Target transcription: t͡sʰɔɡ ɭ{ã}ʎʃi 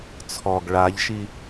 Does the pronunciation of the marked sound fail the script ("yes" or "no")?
yes